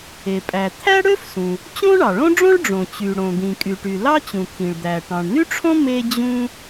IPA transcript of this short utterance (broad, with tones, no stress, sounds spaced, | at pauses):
e˩ pʼ æ˩ t̪ʰ æ˥ ɽ ø˥ f s ũ˩ | t͡ɕ õ˥ ɳ ɑ˩ ɭ õ˥ ɖ͡ʐ õ˥ ɭ ɖ͡ʐ õ˩ t͡ɕ y˩ ɽ õ˩ d̪ ĩ˩ kʼ y˩ ʈ y˩ l ɑ˥ t͡ɕ ũ˩ t̪ʰ ĩ˩ ɭ d̪ æ˩ ʈ ɑ̃˩ ɳ n̪ y˥ ʈ͡ʂʰ õ˥ m e˥ d͡ʑ ũ˥